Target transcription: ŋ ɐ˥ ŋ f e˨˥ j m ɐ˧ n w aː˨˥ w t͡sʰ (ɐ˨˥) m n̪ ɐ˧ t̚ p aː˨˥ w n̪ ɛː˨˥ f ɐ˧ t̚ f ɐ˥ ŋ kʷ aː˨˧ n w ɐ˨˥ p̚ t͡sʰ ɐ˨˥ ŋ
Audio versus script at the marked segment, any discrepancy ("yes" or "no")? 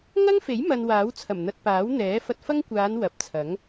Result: yes